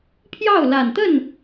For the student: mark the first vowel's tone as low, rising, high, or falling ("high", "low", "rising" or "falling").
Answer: falling